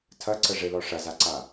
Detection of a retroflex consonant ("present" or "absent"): present